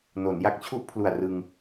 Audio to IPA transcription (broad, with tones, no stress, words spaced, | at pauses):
no˩˦nja˦˥k̚t͡ɕʰu˥˩ʔ pʰlu˨˩a̯ rɯ˧ŋ